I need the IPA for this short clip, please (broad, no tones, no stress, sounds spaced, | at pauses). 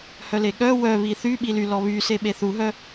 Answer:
h œ l e ɠ œ w œ β i θ y ɓ i l y l ɔ β y s e ɓ e θ u ɦ œ